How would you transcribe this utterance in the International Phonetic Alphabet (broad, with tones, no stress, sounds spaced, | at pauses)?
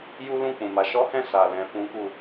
j u˦ l ũ˦˨ k͡p ũ˨ m a˨˦ ʃ ɔ˦ h ɛ̃˦˨ s a˨ l ɛ̃˧ f ũ˦ k u˦˨